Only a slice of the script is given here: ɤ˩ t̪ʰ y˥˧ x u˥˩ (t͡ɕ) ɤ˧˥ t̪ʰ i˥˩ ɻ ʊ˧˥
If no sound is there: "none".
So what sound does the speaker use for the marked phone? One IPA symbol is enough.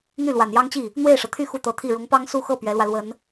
t̪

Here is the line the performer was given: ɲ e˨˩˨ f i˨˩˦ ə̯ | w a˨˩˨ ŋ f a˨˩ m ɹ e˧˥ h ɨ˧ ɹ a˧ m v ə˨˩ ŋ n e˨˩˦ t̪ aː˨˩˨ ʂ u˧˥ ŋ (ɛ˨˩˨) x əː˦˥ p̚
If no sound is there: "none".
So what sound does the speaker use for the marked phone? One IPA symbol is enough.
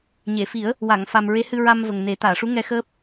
ɛ˧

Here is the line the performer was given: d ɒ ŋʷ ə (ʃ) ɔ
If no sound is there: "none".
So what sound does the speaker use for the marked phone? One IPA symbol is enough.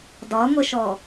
ʃ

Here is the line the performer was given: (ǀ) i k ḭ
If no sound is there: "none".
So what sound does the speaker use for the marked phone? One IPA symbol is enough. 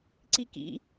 ǀ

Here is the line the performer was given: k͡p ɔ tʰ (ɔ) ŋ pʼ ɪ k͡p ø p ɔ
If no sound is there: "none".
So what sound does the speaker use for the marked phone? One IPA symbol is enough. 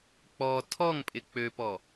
ɔ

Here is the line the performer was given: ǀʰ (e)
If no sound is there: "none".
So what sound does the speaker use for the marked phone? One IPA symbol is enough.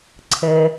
ɘ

